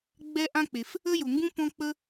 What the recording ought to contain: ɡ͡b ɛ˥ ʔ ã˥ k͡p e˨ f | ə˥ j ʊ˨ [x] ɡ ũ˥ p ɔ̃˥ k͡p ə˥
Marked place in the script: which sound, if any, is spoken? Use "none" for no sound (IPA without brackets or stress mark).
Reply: ŋ